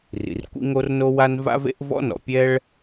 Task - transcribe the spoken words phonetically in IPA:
r ḭ˩ r kʷ ḭ˥ ŋ o˥ r n o˥ w a˥ n v a̰˥ v ḛ˥ ʔ v ɔ̰˥ n ɔ̰˩ pʲ ɛ˥ ɭ

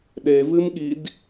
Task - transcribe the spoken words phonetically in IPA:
ɗ e v ɨ m ɠ i d

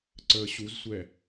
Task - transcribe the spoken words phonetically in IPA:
ǀ əː ɕ u z sʷ ɛ

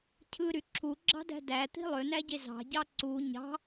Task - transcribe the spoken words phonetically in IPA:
cʰ ɯ ɾ y ǁʰ u ɡ͡ǁ ɑ̤ d æ̤ d æ t̪ i̤ lˠ ø n æ ɟ e z ɑ̤ ɟ ɑ ǀ u ɲ ɑ̤

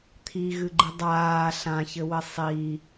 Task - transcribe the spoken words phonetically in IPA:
t̪ʰ i ɣ ɨ ɡ͡ǃ ɨ dˤ aː ɬ ã ç ɘ w ɘ sˤ i

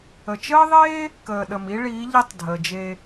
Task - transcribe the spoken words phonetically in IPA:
ə˨ t͡ʃ əː˦ ðˤ eː˦ | k əː˨ ɗ ə˨ m i˦ ɭ iː˨˦ ʎ i˦ tˤ dʱ əː˨ d͡ʒ eː˧

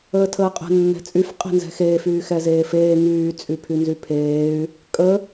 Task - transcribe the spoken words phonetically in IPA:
əː tʰ əː qʼ ə̤ nː ɛ̤ t͡sʼ y f qʼ e̤ n z ɛ̤ x eː f yː x ɛ z eː f eː ŋ yː t͡sʼ y pʰ y n z y pʰ eː y̯ | kʼ ə

